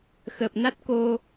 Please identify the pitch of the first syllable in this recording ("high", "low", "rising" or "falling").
low